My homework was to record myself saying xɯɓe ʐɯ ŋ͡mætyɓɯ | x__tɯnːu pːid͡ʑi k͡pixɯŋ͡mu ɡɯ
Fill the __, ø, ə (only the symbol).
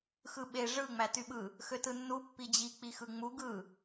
ø